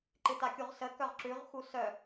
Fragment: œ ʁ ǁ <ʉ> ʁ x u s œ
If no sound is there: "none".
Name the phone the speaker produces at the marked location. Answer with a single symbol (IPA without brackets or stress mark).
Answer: ʉ